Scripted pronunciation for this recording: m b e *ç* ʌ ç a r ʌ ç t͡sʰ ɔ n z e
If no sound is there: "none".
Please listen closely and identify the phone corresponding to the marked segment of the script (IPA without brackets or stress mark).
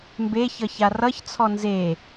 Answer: ç